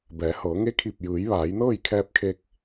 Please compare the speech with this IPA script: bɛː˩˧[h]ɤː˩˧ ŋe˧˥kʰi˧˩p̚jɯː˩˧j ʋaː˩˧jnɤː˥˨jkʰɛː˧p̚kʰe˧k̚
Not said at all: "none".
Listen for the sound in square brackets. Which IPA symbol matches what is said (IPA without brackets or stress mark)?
h